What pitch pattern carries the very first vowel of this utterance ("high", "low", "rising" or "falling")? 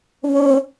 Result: high